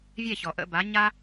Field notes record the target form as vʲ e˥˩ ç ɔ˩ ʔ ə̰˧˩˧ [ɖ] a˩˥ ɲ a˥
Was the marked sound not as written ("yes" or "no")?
yes